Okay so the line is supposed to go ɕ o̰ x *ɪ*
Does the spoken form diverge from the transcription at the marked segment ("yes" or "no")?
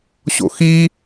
yes